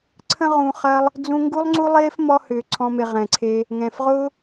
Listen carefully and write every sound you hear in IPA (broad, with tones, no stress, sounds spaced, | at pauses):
ǀʰ ə̃˦ ʁ ũ˧ χ ɐ˧ lˠ | d͡z ũ˧ ŋ ɡ u˦ lˠ ŋ͡ǀ u˦ lˠ eː˦ f m ɔ˧ h ʏː˨ ǀʰ ɔ̃˦ m e˧ ʁ ɛ̃˨ ǀʰ e˦ | ŋ ɛ̃ː˨ f ʁ ʊː˦